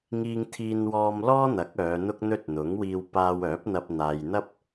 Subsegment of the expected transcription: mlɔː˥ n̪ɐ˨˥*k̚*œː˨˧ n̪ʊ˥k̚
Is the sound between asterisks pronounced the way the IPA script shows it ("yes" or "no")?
yes